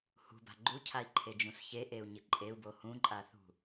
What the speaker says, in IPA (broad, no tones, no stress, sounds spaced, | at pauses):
h ṳ b a̤ ɡ͡ǃ u cʰ a i̯ ǃʰ e d͡ʒ ũ s ç e ʔ e u̯ ɲ ɪ ǃʼ e u̯ b o h ũ ǃʼ a θ ṳ